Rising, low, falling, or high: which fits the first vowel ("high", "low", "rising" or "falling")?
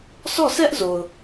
falling